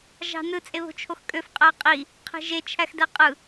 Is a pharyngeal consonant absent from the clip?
yes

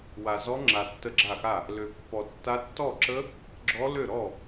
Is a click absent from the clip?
no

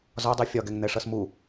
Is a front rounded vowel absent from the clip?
yes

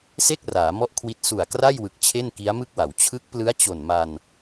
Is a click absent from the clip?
yes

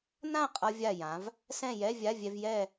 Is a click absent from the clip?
yes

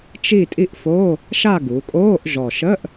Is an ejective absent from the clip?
no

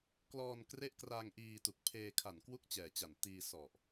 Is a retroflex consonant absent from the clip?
yes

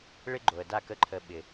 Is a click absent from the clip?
no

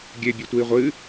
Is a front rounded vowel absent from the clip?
yes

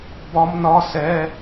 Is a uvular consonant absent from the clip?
yes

